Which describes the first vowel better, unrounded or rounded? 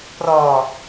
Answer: rounded